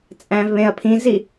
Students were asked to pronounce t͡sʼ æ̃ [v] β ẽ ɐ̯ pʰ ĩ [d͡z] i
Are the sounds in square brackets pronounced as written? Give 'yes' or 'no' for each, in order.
yes, no

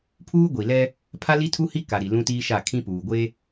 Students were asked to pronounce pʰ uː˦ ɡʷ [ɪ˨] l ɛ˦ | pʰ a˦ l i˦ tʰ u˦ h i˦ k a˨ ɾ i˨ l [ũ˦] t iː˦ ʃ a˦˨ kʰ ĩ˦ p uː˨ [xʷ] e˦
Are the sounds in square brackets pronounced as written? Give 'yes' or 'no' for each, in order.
no, yes, no

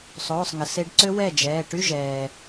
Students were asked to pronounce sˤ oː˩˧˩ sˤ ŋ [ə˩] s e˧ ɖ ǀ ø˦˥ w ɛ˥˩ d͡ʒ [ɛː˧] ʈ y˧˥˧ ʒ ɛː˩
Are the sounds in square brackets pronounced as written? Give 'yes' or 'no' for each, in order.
yes, no

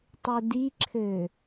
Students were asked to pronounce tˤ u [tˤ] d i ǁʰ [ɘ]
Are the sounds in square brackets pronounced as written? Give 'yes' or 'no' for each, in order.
no, yes

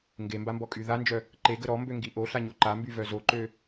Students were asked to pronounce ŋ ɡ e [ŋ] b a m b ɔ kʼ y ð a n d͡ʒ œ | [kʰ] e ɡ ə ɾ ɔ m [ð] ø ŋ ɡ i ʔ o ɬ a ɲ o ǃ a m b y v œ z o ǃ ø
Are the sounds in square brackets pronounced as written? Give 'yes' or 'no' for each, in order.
no, no, no

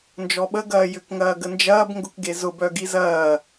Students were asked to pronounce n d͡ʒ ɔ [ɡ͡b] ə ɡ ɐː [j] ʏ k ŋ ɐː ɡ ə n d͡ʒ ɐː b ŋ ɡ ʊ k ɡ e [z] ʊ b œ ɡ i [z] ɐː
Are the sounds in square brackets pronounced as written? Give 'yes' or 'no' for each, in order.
no, yes, yes, yes

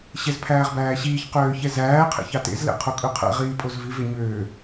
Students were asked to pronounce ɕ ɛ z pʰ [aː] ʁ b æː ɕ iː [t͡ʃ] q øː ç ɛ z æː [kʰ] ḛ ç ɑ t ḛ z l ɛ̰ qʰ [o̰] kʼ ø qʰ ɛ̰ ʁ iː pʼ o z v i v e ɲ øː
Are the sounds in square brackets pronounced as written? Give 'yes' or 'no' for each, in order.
no, no, no, no

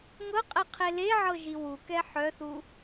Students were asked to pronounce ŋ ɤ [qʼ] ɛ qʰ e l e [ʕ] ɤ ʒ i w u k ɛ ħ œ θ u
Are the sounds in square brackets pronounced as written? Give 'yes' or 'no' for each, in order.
yes, yes

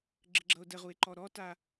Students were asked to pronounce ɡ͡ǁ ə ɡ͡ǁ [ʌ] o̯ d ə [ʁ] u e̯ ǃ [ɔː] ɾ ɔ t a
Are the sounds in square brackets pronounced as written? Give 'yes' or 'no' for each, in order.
yes, yes, no

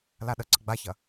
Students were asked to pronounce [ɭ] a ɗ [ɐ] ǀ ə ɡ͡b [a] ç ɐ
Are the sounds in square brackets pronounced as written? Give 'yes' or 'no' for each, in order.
no, no, yes

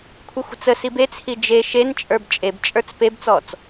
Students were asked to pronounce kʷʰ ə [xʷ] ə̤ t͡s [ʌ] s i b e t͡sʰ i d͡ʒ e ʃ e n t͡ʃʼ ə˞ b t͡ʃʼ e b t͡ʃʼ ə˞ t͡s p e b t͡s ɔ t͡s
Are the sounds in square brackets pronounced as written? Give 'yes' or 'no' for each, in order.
yes, no

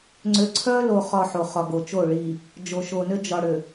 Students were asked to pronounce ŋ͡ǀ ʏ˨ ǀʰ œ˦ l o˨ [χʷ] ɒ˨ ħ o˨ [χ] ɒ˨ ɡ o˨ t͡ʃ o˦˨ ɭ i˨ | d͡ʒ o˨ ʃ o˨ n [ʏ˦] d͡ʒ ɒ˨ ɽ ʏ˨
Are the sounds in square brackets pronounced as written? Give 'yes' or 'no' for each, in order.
no, yes, yes

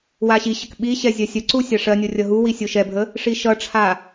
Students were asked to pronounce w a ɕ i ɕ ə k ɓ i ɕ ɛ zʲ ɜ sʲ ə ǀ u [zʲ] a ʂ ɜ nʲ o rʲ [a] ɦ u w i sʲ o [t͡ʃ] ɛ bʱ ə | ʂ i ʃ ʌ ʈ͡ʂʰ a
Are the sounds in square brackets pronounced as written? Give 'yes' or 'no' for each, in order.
no, no, no

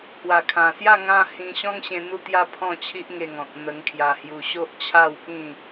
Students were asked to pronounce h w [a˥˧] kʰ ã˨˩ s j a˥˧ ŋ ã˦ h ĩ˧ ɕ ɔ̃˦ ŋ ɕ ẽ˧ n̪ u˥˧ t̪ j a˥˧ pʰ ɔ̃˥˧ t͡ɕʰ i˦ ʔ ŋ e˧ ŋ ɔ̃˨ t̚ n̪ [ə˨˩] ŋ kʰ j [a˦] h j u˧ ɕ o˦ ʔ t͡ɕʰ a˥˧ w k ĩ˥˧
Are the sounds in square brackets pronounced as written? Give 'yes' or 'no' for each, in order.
no, no, no

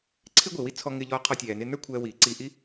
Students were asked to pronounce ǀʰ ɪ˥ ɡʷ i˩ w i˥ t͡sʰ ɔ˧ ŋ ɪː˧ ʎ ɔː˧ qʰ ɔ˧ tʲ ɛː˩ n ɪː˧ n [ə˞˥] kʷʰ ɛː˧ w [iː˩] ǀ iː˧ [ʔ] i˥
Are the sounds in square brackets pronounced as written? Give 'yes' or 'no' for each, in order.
yes, yes, yes

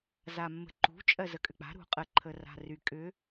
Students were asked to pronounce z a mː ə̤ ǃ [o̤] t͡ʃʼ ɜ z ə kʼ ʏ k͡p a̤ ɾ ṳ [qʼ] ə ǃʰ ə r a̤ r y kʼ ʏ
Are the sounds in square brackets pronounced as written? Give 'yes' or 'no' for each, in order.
no, yes

